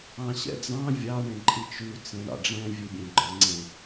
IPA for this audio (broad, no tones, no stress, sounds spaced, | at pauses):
ɑ̃ ɕ ɛ̰ d͡z ɑ̃ vʲ ɑ ɳ ẽ ǃʼ i t͡ʃ ʉ t͡s ẽ ɳ ɑ̰ ɖ͡ʐ ɛ̃ vʲ ʉ bʲ ẽ ɡ͡ǃ ə˞ ŋ͡ǀ ẽ